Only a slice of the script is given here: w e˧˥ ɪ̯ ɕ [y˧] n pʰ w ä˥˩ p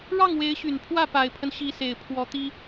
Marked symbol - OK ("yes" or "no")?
no